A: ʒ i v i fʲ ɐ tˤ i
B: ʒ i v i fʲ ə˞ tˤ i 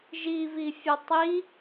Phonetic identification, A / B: A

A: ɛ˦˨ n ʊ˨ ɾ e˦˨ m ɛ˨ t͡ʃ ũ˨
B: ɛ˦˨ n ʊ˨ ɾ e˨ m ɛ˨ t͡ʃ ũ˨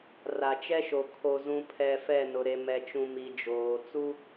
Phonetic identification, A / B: B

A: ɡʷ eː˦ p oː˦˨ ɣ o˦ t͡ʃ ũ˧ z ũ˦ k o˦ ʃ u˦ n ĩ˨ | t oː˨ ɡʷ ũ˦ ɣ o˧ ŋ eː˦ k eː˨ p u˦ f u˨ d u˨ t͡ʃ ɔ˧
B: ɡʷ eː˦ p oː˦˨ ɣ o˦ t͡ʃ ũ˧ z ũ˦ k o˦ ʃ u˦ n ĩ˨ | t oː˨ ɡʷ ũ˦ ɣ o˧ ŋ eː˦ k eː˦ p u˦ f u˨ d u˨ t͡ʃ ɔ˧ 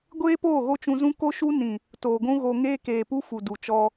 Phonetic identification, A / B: A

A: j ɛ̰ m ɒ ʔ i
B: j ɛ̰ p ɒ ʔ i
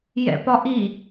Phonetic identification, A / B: B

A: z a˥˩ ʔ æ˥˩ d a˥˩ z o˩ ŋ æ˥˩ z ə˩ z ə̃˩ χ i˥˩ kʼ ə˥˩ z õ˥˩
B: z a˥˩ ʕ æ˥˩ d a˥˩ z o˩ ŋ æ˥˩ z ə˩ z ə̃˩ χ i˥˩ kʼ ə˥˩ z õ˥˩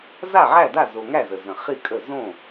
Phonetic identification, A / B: B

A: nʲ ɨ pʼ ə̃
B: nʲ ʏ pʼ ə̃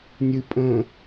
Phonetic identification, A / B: A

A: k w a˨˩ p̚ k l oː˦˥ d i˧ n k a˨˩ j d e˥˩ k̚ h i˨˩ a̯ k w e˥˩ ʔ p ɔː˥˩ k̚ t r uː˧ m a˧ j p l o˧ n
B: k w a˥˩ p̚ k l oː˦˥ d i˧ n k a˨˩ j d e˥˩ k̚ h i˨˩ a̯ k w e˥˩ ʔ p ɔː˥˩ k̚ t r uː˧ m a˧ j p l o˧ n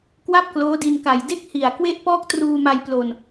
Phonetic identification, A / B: B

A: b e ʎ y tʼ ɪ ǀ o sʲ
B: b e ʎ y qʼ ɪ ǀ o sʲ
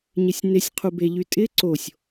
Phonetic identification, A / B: A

